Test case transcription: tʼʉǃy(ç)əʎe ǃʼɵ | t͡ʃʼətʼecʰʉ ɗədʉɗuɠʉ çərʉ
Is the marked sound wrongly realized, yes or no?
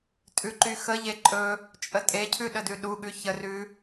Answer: yes